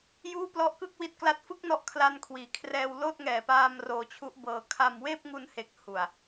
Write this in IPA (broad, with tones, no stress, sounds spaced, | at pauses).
j uː˥˩ p l ɔ˥˩ ʔ k ɯ˥˩ k̚ w i˦˥ t̚ k l a˦˥ t̚ f ɯ˥˩ k̚ n ɔ˦˥ ʔ kʰ l a˧ n kʰ w iː˩˦ kʰ r ɛː˧ w l oː˥˩ t̚ ŋ ɛː˨˩ p aː˧ m r oː˧ t͡ɕʰ u˦˥ ʔ b ɤː˧ kʰ a˧ m w eː˥˩ p̚ ŋ u˧ n h e˨˩ k̚ h u˨˩ a̯